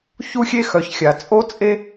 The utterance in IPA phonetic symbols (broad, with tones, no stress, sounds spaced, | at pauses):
ç u˦ xʲ e˦ x œ˨ ç xʲ a˨ t͡sʼ o˦ t͡sʼ e˦